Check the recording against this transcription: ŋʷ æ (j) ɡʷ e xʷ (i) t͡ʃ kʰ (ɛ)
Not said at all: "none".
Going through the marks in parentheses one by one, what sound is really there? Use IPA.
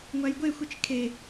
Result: j, i, e

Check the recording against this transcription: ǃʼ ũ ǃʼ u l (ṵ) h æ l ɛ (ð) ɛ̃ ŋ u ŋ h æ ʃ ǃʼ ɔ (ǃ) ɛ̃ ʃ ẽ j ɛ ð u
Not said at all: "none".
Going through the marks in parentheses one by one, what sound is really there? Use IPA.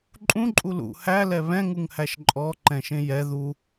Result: ṵ, β, ǃ

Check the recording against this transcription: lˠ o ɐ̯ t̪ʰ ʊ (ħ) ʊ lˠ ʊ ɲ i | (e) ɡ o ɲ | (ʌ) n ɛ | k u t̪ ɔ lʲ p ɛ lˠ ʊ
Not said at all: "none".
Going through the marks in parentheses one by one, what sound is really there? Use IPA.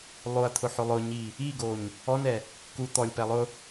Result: ħ, i, ɔ

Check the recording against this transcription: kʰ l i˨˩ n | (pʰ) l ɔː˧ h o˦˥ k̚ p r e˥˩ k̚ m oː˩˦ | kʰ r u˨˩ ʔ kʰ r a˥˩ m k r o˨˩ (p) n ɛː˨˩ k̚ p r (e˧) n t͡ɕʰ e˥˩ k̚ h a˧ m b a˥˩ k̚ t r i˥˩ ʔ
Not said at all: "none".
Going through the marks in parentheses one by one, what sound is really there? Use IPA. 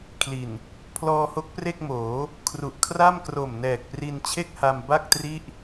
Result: pʰ, m, i˧

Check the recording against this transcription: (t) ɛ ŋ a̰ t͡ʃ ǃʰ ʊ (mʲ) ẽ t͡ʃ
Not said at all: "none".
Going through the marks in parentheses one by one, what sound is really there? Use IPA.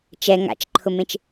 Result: t͡ʃ, m

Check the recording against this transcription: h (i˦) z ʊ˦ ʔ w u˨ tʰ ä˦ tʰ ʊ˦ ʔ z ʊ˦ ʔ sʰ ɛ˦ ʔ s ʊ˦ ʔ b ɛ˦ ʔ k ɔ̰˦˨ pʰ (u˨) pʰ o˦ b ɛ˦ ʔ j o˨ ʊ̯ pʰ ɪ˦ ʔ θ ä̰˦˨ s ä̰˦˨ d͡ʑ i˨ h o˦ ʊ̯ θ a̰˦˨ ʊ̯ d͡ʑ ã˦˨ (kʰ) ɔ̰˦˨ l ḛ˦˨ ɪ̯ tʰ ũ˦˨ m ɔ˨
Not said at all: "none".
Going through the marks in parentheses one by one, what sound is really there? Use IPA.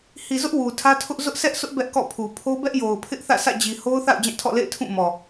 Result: i˨, u˨, tʰ

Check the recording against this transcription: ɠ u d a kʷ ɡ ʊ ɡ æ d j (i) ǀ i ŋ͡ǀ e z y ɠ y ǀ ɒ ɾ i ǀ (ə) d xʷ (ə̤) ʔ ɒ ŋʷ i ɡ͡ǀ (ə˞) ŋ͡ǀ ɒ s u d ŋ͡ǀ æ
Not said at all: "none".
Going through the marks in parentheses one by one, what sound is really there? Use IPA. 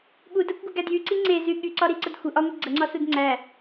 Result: y, ə, ə, ə

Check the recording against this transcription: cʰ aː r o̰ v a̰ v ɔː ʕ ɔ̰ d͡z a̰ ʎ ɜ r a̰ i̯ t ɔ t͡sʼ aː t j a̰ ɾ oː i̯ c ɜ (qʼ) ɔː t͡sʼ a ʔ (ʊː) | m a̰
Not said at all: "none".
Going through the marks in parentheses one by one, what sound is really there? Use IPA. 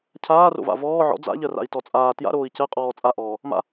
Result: qʼ, ɔː

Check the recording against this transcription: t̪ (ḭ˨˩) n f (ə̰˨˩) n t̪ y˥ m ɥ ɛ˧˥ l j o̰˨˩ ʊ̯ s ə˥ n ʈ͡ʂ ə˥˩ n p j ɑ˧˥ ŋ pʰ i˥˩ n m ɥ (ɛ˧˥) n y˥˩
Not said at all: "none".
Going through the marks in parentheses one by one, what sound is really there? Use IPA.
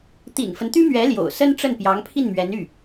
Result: ḭ˨˩, ə˦, ɛ˧˥

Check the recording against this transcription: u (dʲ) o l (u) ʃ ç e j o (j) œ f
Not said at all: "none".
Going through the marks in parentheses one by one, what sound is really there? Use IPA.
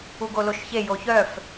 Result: ɡ, o, ç

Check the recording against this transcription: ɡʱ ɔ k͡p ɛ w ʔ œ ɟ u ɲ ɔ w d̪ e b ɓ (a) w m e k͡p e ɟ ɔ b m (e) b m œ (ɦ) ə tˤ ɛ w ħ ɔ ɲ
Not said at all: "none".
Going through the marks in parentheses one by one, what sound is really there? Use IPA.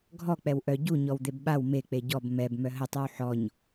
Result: a, ɛ, ɦ

